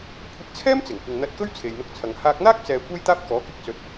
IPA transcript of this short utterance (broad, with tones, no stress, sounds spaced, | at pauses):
kʷʰ ɪ˧ k̚ t͡sʰ ɛː˥ m t͡s ɪ˨˩ ŋ kʷ ɪ˨ ŋ n̪ ɐ˧ t̚ k ɵ˥ ɥ t͡sʰ e˨ j n̪ ʊ˧ k̚ t͡sʰ ɐ˨ ŋ h aː˧ k̚ n̪ aː˥ k̚ t͡s ɛː˨ kʷ e˥ j t̪ aː˥ p̚ k ɔː˨˥ k ɪ˥ k̚ t͡s ɵ˨˥ t̚